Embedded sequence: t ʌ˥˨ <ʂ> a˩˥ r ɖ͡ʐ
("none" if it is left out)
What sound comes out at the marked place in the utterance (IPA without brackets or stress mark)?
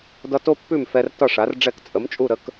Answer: ʂ